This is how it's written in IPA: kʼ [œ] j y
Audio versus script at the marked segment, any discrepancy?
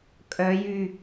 no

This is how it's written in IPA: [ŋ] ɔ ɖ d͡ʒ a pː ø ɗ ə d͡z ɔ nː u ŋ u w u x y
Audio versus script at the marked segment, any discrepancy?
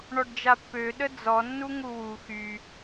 yes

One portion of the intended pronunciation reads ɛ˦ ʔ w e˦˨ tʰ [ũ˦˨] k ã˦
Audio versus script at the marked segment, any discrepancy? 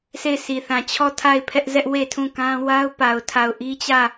no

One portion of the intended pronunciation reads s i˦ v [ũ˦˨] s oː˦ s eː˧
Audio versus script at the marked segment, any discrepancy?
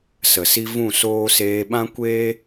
no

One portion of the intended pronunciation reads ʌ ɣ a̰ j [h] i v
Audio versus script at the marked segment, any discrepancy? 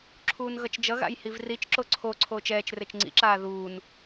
no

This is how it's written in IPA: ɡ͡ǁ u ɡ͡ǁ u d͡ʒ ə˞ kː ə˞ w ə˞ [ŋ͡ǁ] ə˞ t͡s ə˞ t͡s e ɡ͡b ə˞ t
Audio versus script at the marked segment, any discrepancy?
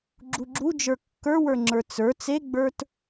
no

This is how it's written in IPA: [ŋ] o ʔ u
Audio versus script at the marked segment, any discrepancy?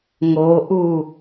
no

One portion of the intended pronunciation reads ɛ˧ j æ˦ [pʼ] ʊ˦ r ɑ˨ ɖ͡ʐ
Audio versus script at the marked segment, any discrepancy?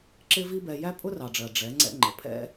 no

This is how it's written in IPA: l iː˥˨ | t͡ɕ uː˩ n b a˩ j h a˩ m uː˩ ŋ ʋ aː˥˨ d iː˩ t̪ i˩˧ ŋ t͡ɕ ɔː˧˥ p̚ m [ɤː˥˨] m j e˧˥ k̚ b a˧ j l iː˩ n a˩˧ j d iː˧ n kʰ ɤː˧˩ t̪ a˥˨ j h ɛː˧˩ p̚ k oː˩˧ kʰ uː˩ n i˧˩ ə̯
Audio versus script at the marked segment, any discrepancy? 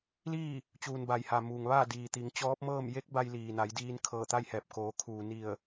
no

